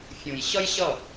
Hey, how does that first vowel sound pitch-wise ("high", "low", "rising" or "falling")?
low